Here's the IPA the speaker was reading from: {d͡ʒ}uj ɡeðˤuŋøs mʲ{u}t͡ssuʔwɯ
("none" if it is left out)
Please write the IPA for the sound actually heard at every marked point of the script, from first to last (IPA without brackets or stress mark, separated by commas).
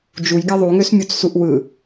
d͡ʒ, u